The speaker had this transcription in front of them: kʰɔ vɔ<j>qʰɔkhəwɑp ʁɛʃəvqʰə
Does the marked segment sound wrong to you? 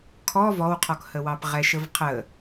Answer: yes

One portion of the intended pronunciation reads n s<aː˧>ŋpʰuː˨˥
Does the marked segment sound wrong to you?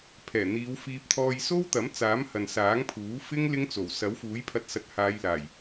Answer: yes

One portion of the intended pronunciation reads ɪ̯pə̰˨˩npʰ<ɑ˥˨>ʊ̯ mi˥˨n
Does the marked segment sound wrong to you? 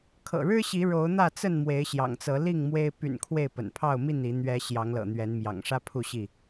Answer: no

